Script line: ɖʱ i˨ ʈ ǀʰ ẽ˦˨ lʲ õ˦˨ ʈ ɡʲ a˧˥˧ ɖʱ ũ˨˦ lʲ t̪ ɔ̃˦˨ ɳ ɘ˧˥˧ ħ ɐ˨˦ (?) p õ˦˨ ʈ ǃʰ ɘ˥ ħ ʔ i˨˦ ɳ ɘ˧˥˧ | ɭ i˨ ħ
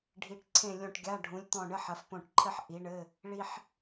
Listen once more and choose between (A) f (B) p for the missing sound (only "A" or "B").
A